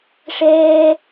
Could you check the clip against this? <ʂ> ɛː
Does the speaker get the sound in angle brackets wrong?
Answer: no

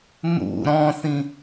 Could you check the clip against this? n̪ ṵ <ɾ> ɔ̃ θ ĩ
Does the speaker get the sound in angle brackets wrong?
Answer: no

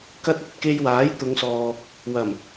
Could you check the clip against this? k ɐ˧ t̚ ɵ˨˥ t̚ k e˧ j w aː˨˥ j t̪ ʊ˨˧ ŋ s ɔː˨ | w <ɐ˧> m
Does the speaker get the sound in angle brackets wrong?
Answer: yes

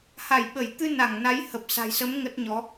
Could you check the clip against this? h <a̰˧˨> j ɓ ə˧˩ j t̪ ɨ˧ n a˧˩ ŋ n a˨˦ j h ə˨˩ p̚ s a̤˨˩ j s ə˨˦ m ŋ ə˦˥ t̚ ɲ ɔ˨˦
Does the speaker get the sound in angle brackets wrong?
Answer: yes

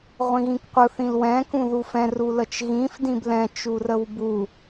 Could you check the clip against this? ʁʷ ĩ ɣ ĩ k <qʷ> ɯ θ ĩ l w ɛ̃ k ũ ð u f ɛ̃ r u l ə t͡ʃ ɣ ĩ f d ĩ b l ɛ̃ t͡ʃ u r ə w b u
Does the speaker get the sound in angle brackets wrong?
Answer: no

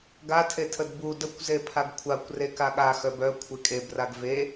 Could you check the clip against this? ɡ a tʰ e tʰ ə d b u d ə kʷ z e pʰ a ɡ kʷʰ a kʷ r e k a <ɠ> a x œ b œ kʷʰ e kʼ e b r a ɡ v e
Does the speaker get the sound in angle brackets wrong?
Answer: no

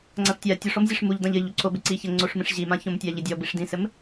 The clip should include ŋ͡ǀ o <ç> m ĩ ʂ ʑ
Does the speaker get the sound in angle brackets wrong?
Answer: yes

